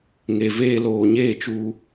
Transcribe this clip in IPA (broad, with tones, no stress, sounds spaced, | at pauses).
ŋ e˨ v eː˧ l oː˨ ɲ eː˦˨ t͡ʃ u˧